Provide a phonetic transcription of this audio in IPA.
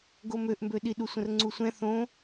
ɡ o m ø ʔ m b ø ɗ i ɗ u sʷ ə̃ r ŋ͡ǀ u sʷ ɛ̃ θ õ

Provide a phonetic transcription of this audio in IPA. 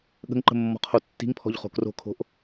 ɠ ə̤ ŋ ǃ ə̤ mː ɔ̤ qʰ o tː i̤ ŋ pʰ ɔ̤ ʎ χ o̤ k r o̤ kʰ o̤ ʔ

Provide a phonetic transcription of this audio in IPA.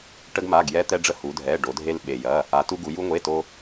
ʈ ə˧ ɡ m a˩˧˩ ɡ j ɛ˧ t̪ ɛ˧ ɖ͡ʐ ə˧ h u˩˧ dʱ ɛ˩˧˩ ɖ o˩˧ dʱ e˧ l ɓ e˩ j ɐ˩˧˩ | a˩˧ t u˧ ɡ u˩˧ j u˧ ŋʷ e˩˧˩ t o˧

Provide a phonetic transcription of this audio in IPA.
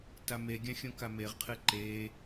t a m e ɡʲ ã xʲ õ k a m e ʁ qʰ ɨ ǃ e

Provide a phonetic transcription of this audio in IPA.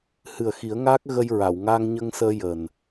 h ɨ˨˩ ə̯ x i˨˩˦ ə̯ ŋ aː˦˥ k̚ ɣ ə˧ j ɹ a˨˩˨ w ŋ aː˧ ŋ ɲ ə˧ ŋ s əː˧ j əː˨˩ n

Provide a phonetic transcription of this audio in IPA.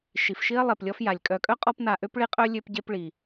ʃ i˩ f ʃ i˥ ɐ̯ lˠ e˩ p lʲ ɔ˦ f j a˩ lʲ kʼ œ˨ kʼ œ˥ qʼ ɔ˦ p n a˨ ʔ ø˥ p ɭ i˦ qʼ œ˥ lʲ ø˦ p ɟ e˦ p ɭ i˩

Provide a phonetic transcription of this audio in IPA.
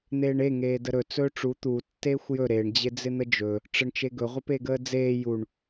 n̪ eː ɳ e ŋ eː d ə ɾ ɵ t͡s ɵː ʈ͡ʂ u t̪ u tː eː xʷ j ɵ ɾ e ɳ d͡ʑ ɪ d͡z ɪ n̪ ə d͡ʒ ɵ | ʈ͡ʂ ə ɳ t͡ʃ e ɡ ɵ ʁʷ ə p e ɡ əː d͡z eː j u ɳ

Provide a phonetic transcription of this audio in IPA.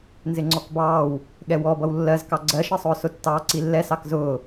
n z ɪ ŋ͡ǀ ɔ k b ɑː w | ɠ ɛ w ɔ b ʌ w lː ɜ z k ɑ ɡ͡ǀ ɜ ʃ ʌ sˤ ʊː s ʊ tː ɑː ǀ i lː ɛ s ɑ k z ʊː

